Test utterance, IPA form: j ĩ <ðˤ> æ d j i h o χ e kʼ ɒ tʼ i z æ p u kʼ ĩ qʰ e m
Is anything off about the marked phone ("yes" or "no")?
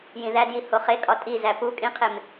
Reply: yes